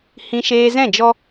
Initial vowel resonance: nasal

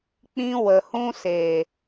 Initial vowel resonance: nasal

